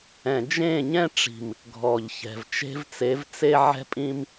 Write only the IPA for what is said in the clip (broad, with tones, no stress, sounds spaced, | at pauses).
ɛ̃˨ d͡ʒ ẽ˦˨ ɲ ɛ̃˦ ʈ͡ʂ i̤˨ m | ɡʱ ɔ˨ ʎ ç ɛ̤˨ v t͡ʃ e̤˦ v t͡s e˨˦ v t͡s e˧ ʕ ɛ̤˧ pʼ ĩ˧ m